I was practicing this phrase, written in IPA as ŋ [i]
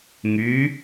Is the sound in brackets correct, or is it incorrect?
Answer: incorrect